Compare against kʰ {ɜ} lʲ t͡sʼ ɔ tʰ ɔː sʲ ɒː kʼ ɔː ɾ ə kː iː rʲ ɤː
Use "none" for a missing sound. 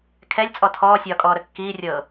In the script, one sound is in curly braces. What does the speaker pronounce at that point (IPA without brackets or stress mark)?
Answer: ɛ